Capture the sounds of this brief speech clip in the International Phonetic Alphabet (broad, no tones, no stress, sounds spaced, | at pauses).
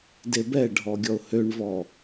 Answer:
d e b ɛ ɖʱ ɔ ɡʲ ɔ ʊ̯ h ø ɳ v ɔː